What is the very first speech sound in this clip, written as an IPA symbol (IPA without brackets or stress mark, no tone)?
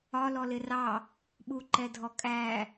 ɒ